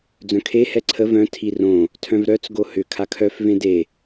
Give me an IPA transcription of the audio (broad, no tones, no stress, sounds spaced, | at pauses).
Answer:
d͡z œ̃ kʰ e h ɛ ǀʰ ə v œ̃ tʰ i r õ | tʰ œ̃ v ɾ œ t͡s ɡ o h ʏ kʰ a kʰ œ f v ẽ d e